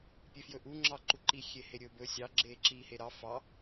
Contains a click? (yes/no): yes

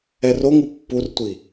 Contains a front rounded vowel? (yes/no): no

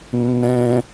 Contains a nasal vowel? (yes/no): yes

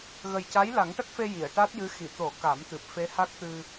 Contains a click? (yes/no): no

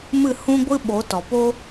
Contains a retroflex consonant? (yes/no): no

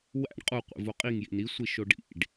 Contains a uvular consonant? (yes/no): yes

